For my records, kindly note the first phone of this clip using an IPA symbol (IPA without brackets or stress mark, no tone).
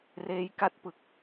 r